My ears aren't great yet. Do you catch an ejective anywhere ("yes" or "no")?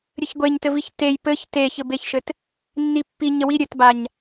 no